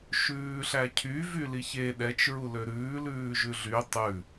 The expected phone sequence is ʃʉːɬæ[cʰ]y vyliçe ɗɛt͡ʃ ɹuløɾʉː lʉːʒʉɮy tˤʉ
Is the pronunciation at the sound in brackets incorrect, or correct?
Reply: correct